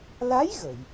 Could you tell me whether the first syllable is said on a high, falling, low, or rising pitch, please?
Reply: rising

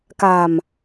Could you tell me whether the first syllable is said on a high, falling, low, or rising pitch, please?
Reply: low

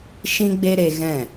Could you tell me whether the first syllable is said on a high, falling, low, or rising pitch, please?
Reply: high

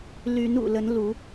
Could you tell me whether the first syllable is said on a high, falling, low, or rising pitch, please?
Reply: rising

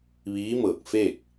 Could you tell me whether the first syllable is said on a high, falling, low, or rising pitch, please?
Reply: rising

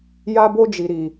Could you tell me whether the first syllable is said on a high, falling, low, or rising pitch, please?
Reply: high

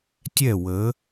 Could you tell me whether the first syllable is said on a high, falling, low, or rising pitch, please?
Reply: falling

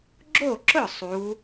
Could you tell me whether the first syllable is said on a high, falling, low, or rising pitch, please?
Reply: falling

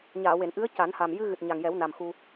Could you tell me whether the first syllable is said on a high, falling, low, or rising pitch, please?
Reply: low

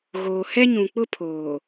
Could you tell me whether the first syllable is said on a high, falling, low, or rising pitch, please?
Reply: low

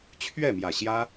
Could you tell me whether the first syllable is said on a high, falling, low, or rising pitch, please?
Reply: falling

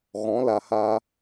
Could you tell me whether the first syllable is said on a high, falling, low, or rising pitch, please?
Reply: rising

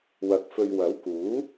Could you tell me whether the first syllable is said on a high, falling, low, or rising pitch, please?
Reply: rising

